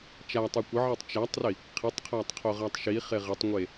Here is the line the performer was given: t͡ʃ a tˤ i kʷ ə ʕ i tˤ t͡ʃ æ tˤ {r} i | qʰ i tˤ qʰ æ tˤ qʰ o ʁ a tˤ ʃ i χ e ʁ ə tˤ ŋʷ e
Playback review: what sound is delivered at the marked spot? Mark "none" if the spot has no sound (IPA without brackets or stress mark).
r